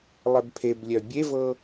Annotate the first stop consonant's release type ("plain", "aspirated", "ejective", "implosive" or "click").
plain